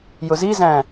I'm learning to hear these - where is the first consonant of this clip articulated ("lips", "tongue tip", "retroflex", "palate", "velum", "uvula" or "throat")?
palate